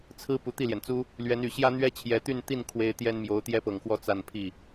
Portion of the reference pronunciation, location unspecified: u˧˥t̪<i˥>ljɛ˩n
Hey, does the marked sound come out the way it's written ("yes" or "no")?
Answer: no